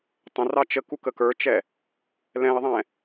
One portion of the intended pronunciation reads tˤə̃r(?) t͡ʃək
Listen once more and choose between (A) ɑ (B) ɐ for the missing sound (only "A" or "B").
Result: A